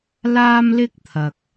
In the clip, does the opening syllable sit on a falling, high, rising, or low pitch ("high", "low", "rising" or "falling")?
high